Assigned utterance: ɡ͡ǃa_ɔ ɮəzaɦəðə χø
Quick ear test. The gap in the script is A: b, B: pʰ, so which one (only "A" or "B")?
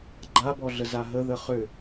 A